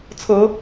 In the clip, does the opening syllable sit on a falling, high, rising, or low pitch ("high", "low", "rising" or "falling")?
rising